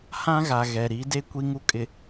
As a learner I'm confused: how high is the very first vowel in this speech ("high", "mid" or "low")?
low